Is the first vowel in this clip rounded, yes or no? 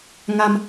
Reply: no